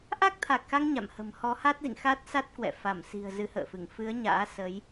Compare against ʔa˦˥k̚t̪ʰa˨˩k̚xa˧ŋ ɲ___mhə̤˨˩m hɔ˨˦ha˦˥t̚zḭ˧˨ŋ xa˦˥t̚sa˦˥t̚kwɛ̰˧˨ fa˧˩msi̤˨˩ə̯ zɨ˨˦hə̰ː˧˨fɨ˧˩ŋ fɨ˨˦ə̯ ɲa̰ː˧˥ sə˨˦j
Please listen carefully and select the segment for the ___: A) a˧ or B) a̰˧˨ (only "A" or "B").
B